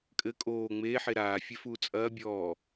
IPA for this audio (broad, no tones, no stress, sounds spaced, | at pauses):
kʼ ɘ kʼ oː ŋ͡m eː ħ e ɾ aː fʲ ɛ f uː t͡sʼ ɐː bʲ ɔː